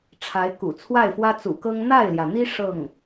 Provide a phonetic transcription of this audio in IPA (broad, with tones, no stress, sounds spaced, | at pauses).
ʈ͡ʂʰ a˧˥ ɪ̯ k ṵ˨˩ t͡sʰ w a˥˩ ɪ̯ f w ä˥ t͡s ṵ˨˩ k ɤ˥ ŋ n̪ a˥˩ ɪ̯ l j ä˩ n̪ i˥ ʂ ɤ˥˩ ŋ